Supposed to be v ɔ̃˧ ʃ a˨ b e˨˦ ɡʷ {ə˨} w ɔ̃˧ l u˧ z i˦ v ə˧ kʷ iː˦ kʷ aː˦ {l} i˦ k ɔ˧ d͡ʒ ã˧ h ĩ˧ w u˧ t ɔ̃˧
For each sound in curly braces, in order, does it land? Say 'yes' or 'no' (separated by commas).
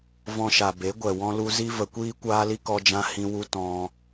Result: no, yes